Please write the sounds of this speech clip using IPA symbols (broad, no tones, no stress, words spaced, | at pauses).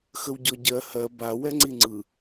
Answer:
xəwɟɔɟɜ hɜ ba wɛŋ͡ǀiŋ͡ǀɯ